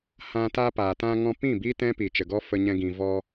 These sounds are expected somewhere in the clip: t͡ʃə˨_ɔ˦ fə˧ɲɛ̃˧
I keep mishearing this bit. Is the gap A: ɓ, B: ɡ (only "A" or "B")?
B